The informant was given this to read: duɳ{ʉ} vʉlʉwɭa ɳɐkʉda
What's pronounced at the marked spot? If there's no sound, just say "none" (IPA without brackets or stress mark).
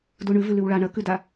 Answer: ʉ